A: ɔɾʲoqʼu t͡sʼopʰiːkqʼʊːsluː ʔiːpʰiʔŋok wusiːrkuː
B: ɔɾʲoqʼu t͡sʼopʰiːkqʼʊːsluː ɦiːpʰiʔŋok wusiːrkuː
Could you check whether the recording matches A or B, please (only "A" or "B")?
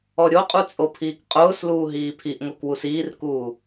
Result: B